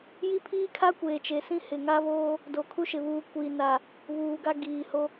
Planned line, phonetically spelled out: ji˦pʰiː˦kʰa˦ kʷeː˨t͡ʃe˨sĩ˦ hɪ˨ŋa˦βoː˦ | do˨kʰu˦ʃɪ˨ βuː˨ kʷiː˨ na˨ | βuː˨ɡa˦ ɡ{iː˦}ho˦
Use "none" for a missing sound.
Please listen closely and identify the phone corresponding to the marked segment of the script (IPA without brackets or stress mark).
iː˨